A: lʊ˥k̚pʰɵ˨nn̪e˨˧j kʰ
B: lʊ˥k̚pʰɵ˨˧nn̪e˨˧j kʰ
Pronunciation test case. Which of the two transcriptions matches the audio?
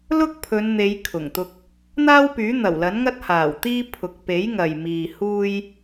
B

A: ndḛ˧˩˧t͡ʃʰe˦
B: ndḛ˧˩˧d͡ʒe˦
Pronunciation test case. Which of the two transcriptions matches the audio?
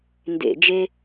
B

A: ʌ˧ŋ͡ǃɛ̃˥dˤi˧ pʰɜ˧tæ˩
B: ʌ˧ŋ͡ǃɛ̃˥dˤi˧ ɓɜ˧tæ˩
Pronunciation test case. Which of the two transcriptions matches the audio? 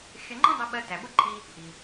B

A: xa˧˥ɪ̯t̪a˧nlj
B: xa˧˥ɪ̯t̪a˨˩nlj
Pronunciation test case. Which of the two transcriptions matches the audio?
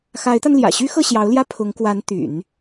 A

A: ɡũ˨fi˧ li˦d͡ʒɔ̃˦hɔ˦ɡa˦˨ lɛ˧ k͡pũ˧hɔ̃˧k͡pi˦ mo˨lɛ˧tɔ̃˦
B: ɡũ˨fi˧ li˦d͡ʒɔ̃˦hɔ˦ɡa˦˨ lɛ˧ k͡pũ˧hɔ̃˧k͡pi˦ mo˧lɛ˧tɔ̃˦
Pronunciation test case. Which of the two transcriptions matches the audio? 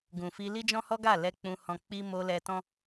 B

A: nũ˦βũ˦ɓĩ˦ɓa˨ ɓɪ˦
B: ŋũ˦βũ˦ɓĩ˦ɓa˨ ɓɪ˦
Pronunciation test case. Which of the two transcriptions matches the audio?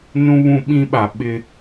A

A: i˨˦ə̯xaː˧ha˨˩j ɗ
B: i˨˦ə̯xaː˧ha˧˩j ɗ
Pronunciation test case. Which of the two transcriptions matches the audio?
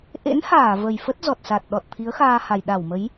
A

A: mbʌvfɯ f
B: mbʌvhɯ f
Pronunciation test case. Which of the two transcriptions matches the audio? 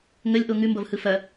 B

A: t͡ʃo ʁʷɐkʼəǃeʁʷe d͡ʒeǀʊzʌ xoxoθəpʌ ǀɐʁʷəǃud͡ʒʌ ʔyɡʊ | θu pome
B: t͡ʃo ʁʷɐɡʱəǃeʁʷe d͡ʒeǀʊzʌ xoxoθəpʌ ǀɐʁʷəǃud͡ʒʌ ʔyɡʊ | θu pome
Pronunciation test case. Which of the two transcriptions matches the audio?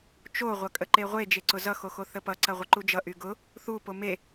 A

